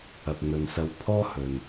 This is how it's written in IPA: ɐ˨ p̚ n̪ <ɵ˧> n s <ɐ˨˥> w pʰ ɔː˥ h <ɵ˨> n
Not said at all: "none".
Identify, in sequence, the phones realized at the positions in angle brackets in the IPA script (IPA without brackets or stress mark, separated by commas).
ɵ˨, ɐ˧, ɵ˨